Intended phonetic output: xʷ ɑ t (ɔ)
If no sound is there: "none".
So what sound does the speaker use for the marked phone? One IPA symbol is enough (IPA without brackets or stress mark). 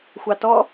ɔ